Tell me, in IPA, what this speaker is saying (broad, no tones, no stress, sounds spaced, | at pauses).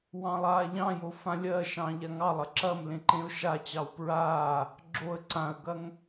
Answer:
w ɑ̃ lˠ aː ʎ ɑ̃ j o f ã lʲ ɜ ʃ ɑ̃ ʎ a ŋ ɑ lˠ ɐ ǁ ɐ m l ẽ ǃ ẽ ʊ̯ ʃ a t͡ɕ ɑ w p ɹ aː | ɡ͡ǁ o ə̯ ǀ ã ə̯ ɡ ɐ ŋ